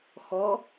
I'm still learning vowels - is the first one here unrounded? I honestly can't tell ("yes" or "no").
no